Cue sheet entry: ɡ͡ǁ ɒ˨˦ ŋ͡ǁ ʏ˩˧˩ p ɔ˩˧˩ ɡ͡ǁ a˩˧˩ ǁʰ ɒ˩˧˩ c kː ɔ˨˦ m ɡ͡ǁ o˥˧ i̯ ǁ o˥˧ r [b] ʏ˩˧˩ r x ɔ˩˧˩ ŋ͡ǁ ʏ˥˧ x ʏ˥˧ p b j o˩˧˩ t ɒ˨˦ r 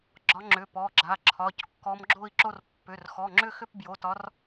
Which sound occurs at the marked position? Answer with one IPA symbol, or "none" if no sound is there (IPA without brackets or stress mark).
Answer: pː